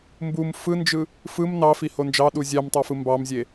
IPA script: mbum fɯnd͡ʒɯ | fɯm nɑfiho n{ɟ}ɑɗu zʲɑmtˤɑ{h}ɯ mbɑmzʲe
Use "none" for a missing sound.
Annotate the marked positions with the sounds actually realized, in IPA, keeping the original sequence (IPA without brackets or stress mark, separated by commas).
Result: d͡ʒ, f